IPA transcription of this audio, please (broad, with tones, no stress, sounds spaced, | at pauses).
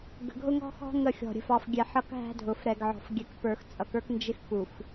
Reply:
ɡ ə̤˨ ɡʱ ʊ˦ ŋ ɔ̤˦ x ɔ̤˦ ŋ ə˦˨ xʲ ɔ̤˨ ɾʲ ə̤˨ f ɑ˨ f ɡʲ ɛ˨ ħ ʌ˦ k ɦ æ̤˦ dʱ ʊ˨ f ɾ ɛ˨ ɡ ʕ ɔ̤˨ f ɡʲ ɛ˨ k p ə˞˨ x t͡sʼ ʌ˨ k ə˞˦ k n d͡ʒ ɪ˦ x k u˨ f